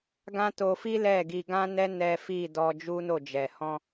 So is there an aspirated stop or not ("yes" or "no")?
no